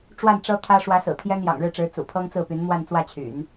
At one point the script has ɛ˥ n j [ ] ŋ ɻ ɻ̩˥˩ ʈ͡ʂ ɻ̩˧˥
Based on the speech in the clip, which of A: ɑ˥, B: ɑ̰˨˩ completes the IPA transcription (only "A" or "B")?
B